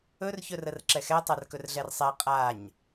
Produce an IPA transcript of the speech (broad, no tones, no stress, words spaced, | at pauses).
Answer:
ɵr çɵrərǁɛxɛ tˤarkɵrɮɛrsˤɛ qʼaɲ